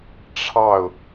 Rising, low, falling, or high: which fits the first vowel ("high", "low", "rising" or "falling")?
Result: falling